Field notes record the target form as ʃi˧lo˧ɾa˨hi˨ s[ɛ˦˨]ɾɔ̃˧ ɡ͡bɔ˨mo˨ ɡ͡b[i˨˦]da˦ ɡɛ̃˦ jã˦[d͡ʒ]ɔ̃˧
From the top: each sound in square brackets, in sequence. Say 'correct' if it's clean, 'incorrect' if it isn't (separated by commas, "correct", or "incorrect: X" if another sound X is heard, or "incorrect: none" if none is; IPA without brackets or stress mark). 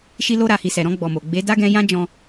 incorrect: ɛ˨, incorrect: e˨˦, correct